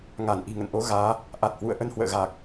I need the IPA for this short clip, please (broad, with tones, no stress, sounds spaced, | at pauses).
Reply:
ŋ a˧˩ n ʔ i̤˨˩ ŋ ə̰˧˨ n ʔ o˨˦ ɣ aː˨˦ | ʔ a˨˩ t̚ h w ṵ˧˨ ə̯ ʔ ə˧ n h w ə̰ː˧˨ ɣ aː˨˩ k̚